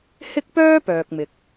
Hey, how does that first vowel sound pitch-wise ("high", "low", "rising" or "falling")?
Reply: high